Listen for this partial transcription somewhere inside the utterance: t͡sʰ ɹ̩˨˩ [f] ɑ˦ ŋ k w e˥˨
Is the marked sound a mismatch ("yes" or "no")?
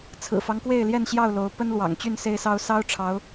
no